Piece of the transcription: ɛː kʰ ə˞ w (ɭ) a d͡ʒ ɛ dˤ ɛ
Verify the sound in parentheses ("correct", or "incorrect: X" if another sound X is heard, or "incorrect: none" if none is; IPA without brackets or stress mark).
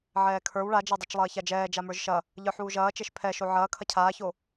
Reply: correct